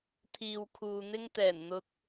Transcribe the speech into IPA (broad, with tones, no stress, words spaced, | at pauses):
t̪ʰiː˨wkʰuː˨n̪ɪ˥ŋ t̪ɛː˨˩nn̪ʊ˧k̚